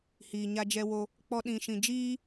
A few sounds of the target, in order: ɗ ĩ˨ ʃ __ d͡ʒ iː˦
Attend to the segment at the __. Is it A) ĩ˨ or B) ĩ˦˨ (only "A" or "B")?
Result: A